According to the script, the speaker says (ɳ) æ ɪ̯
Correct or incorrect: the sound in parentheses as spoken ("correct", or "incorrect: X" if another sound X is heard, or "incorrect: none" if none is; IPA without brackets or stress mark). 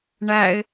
correct